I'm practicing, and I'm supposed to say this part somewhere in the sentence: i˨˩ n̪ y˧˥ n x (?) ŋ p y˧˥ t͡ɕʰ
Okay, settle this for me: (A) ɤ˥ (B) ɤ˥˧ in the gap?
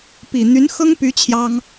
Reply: A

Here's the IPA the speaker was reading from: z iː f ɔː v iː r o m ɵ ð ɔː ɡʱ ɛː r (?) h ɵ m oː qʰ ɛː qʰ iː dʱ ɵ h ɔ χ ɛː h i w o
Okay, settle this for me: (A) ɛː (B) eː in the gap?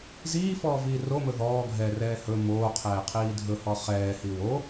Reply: A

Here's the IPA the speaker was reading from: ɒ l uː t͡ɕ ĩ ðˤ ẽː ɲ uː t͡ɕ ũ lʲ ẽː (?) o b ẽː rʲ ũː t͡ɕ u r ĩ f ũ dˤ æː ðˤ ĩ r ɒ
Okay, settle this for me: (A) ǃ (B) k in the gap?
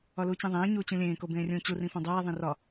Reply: B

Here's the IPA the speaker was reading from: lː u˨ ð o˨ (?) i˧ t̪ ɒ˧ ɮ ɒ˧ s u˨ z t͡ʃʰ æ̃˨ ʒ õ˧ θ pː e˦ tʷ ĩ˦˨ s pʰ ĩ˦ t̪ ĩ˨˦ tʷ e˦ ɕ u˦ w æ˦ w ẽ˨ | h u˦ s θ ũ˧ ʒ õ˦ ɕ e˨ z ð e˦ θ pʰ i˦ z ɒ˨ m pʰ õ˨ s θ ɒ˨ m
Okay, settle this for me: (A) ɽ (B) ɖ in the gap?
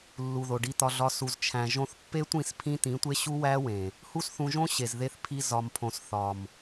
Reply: B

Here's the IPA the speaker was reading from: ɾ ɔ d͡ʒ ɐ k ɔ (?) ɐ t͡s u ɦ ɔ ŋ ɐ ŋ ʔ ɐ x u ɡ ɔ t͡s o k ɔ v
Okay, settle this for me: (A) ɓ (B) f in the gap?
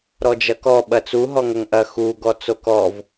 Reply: A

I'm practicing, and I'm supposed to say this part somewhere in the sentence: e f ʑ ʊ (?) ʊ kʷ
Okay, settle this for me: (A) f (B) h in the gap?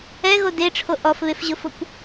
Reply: A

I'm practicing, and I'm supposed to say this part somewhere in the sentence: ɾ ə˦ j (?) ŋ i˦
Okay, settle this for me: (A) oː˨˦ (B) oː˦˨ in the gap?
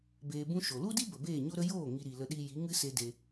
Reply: B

